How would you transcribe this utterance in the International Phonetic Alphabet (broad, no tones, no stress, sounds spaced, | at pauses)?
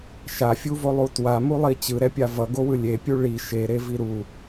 ʃ a fʲ u v o lˠ u t w a m u lˠ i t͡ɕ ɯ ɾ ɛ pʲ a v ʌ ɡ o w ɯ lʲ e pʲ u ɭ i ʃ e ɾ e v i ɾ u